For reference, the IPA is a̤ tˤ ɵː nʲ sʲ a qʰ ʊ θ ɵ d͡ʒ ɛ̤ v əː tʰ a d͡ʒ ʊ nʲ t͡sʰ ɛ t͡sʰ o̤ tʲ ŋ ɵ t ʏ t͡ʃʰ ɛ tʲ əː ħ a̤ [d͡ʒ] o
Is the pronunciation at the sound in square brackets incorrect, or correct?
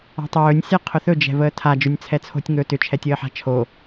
incorrect